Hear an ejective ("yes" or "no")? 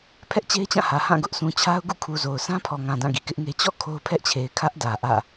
no